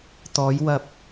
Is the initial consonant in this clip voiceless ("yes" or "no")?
yes